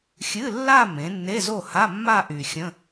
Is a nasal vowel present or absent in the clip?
present